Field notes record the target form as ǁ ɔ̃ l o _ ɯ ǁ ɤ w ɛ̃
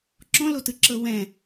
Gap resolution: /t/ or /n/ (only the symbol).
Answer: t